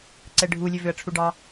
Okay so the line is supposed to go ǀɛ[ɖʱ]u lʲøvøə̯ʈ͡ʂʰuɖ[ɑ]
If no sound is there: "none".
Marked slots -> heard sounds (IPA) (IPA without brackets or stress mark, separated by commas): ɖʱ, ɑ